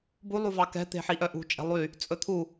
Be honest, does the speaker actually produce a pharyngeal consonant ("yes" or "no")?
yes